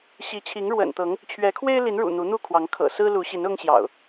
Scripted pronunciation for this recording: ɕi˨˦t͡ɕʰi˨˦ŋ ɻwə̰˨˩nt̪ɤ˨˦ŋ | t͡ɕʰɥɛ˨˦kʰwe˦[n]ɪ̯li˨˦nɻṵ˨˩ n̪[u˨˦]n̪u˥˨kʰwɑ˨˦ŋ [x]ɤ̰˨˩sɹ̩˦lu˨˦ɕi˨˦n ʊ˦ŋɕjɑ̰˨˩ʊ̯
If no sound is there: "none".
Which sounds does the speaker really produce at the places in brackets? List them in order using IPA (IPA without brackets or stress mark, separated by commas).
none, u˨˦, kʰ